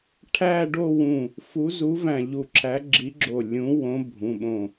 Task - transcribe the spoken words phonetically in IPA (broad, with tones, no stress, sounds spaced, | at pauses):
ʈʰ æ˥˧ ɖ o˥˧ w ũ˧˩ | f u˨˥ z u˨˥ v æ̃˧˩ ʎ u˧˩ ǁʰ æ˨˥ ɡ͡ǁ i˨˥ ɡ͡ǁ o˧˩ lʲ ũ˨˥ w õ˨˥ bʱ ũ˩˧˩ ɓ õ˧˩